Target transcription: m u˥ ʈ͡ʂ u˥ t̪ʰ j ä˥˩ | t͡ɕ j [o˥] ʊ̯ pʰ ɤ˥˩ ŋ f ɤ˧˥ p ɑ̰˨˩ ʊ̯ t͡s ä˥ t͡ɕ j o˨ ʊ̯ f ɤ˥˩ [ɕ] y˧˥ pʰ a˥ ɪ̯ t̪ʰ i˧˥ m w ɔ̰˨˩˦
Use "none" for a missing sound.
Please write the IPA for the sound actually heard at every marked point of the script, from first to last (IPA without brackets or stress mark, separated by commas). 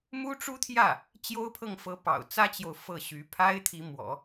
o˥, ɕ